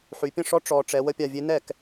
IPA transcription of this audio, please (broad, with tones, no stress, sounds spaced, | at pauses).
ħ y˩˧ pʲ ə̃˥˩ ʂ ɔ˦˥ ʈ͡ʂ ɔ˩˧ ʈ͡ʂ ɛ˩˧ w ə˥˩ pʲ a˥˩ vʲ e˦˥ n ɛ˥˩ k